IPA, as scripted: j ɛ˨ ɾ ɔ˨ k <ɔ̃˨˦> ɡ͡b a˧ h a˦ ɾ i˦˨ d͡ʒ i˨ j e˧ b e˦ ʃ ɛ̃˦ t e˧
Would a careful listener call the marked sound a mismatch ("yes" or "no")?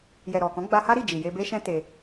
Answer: no